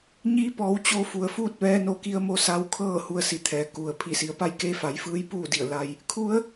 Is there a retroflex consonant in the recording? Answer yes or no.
no